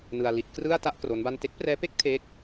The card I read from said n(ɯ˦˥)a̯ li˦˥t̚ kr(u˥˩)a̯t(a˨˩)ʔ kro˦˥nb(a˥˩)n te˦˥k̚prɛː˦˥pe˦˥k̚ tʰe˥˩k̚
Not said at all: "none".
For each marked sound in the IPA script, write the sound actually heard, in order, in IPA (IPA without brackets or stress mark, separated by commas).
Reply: ɯ˧, ɯ˥˩, a˥˩, a˥˩